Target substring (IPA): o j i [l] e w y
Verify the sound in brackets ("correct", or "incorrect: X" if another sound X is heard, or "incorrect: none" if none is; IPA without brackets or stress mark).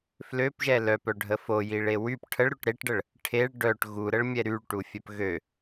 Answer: incorrect: ɭ